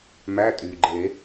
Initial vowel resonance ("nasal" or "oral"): oral